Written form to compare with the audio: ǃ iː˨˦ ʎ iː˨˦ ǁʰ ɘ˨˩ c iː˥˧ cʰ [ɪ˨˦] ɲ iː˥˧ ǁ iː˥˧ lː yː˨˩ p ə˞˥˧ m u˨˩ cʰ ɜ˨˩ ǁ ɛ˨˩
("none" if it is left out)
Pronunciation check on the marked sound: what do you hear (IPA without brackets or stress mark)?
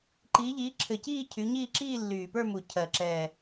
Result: y˨˦